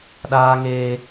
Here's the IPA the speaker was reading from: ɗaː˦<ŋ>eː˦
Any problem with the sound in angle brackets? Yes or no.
no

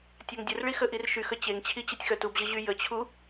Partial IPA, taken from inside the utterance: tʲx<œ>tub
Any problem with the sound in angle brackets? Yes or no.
no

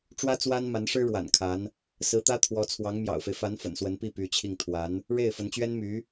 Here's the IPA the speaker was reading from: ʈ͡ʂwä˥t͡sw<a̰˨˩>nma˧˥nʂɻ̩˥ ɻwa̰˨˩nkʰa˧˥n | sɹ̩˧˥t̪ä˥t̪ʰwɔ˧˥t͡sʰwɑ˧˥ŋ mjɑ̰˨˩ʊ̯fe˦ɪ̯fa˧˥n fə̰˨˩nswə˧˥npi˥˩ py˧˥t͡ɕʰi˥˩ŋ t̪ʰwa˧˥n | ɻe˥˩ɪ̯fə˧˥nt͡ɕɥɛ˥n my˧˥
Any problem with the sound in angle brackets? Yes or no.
yes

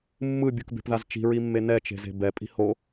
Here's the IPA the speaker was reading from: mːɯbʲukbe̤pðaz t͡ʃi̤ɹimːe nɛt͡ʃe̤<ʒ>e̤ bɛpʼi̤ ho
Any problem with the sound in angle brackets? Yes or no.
yes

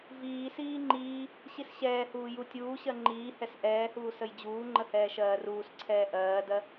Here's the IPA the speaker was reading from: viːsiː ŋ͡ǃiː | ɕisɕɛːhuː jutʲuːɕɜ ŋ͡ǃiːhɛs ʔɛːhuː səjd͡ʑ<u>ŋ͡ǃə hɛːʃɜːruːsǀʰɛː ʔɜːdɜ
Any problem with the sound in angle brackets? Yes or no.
yes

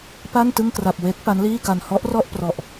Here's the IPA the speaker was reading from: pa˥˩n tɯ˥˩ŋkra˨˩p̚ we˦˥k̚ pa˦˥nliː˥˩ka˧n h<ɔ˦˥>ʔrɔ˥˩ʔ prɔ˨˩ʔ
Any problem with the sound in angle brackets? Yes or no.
no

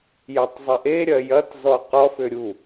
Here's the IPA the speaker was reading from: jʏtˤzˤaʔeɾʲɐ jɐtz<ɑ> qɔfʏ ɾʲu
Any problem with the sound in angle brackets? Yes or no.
yes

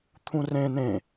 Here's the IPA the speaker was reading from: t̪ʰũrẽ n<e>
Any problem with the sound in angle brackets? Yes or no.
yes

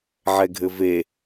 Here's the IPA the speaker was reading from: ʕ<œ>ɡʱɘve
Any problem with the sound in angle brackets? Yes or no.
yes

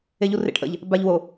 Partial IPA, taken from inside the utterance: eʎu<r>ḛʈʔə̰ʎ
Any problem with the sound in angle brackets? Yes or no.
no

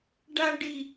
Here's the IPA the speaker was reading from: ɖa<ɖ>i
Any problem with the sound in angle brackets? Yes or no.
no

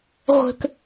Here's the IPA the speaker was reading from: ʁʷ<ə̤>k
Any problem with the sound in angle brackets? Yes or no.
no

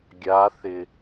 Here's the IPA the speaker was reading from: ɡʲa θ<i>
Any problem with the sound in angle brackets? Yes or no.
yes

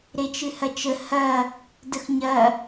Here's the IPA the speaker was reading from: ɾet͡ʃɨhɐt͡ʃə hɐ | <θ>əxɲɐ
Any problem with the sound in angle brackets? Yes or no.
yes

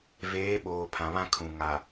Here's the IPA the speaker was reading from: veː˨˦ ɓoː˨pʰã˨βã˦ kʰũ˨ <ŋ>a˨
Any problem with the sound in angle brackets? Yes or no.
no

